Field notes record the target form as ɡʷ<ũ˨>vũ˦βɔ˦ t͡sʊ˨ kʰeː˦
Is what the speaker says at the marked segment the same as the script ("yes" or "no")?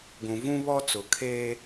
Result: yes